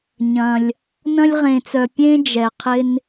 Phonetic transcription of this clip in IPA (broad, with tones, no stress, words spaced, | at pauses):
ɲɐ̃˧lʲ | nɐ̃˥lʲʁẽ˧t͡sœ˧ pʲẽ˥ d͡ʒɛ˧ qʰɪ˥n